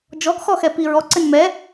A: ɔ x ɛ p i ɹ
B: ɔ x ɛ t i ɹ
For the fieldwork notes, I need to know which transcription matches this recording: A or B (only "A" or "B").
A